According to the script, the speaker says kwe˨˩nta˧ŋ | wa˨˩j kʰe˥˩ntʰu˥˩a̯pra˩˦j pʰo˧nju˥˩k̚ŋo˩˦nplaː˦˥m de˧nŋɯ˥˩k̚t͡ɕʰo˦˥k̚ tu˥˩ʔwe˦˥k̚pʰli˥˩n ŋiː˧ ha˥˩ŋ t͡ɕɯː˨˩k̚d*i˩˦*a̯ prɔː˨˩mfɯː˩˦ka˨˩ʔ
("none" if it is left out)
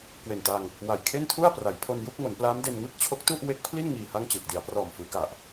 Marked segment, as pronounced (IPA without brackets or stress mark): i˩˦